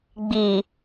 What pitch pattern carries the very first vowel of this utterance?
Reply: low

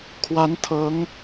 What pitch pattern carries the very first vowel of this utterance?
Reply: rising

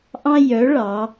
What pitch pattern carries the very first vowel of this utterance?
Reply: high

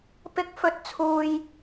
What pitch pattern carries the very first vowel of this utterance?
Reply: low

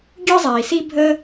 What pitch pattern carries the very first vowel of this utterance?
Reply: high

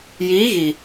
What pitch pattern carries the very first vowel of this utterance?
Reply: rising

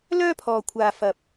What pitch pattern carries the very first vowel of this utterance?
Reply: high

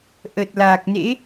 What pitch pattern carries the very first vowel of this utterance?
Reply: low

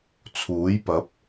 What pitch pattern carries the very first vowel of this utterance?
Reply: rising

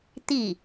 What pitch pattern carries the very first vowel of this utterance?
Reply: falling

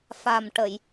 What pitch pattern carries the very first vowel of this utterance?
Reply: low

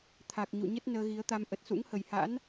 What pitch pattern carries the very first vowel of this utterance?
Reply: low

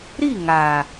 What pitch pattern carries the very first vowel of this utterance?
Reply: falling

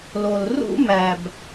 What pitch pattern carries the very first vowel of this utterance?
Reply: low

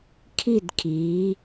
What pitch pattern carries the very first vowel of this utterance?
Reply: falling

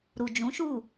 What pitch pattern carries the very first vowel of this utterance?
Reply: low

